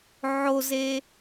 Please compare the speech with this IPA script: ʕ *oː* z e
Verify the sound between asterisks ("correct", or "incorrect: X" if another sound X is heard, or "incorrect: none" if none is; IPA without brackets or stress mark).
incorrect: o